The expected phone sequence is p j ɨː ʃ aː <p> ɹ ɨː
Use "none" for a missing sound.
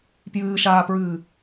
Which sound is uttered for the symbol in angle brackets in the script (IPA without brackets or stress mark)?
p